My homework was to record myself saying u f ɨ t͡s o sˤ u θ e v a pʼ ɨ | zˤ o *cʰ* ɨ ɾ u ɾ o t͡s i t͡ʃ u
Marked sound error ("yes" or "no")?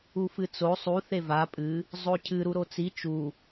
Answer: no